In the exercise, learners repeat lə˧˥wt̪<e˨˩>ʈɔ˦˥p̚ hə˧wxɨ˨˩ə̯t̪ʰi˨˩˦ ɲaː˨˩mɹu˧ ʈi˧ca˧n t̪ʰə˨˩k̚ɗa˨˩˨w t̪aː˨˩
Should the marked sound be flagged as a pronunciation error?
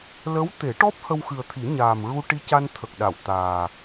yes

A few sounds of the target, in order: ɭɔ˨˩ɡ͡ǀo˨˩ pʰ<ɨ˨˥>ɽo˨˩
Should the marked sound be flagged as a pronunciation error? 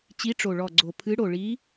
no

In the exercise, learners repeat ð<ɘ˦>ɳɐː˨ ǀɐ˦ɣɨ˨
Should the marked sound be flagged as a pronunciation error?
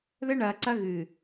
no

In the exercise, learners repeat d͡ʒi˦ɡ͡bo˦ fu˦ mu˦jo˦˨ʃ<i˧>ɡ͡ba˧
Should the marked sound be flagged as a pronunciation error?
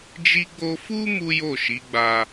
yes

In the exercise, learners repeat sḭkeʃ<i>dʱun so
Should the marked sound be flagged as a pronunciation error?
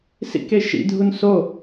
yes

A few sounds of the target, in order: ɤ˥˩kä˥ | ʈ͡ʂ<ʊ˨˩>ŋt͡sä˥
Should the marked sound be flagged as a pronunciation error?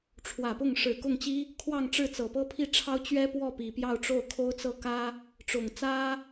no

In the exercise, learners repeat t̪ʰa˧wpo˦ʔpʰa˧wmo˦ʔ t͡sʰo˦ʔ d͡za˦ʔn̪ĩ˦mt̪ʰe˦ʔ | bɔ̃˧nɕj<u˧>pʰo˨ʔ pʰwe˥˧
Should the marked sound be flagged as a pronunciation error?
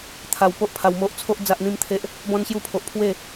no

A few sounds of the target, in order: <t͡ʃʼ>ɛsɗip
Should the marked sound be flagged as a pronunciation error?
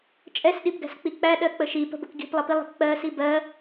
no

